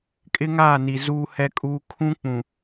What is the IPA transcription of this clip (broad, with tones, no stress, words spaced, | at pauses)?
kʼɪ˦ŋaː˦˨ni˨ zuː˦hɛ˦kʼuː˦ kʰũ˦k͡pũ˨